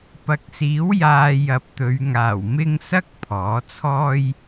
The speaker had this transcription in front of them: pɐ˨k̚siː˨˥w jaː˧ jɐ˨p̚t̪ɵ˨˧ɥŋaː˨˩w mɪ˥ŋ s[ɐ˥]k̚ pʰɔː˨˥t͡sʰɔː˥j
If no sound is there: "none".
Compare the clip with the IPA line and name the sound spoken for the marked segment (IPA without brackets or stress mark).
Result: ɐ˥